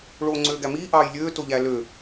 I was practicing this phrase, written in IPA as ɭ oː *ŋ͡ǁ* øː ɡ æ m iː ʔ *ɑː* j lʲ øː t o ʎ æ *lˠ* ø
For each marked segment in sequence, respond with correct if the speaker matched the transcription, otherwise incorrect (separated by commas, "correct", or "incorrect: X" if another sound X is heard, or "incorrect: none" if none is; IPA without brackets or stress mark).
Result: incorrect: ŋ͡ǀ, correct, incorrect: l